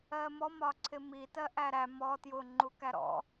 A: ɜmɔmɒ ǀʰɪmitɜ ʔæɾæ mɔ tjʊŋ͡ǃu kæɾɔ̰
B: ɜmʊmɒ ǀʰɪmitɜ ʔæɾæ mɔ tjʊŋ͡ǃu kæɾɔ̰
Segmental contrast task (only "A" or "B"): A